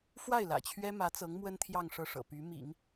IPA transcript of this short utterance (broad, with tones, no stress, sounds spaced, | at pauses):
f w a˥˩ ɪ̯ l ä̰˨˩ t͡ɕʰ ɥ ɛ˥ m ä˧˥ t͡s ɤ˧˥ ŋ m w ə˥ n t̪ʰ j ɑ˥˧ ŋ ʂ ɤ˥˩ ʂ ɤ̰˨˩ p y˧˥ m ḭ˨˩˦ ŋ